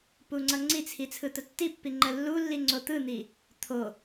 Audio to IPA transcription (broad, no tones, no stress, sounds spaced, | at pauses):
p u ŋ͡ǀ ʌ ŋ͡ǀ i t͡sʰ i t͡sʰ ɯ t̪ ə tː i pː i ŋ͡ǃ ə lː u lː i ŋ͡ǀ o t̪ ɯ n̪ i | t̪ʰ o